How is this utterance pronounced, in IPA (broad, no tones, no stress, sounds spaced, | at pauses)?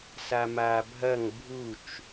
s a m aː bʱ ɐ ŋ bʱ u t͡ʃ